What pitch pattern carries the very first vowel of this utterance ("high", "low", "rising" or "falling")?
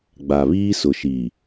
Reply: low